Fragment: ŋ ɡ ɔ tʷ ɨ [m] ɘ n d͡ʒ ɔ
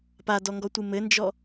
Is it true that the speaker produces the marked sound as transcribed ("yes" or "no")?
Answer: yes